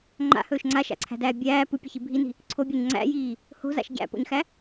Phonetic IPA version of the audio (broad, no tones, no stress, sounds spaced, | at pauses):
ŋ͡ǃ a̰ h ɵː ʃ ŋ͡ǀ a ʃ a̰ ǀʰ æ̤ d æː bʲ æː p ɯ pʲ ɘ ç i bʱ i n i̤ | ǀʰ o bʲ æ ɲ ŋ͡ǀ æ̰ j iː | h o̤ z a̰ ʃ ɟ æ̰ p o̰ ɲ x æ